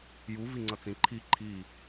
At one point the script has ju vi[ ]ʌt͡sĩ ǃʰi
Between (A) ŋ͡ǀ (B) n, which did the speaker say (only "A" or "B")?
A